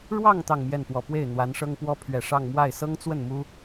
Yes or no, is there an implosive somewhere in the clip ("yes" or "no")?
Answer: no